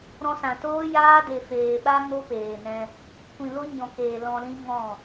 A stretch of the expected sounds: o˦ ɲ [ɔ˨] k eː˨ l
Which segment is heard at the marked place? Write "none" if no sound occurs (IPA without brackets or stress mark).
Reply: ɔ̃˨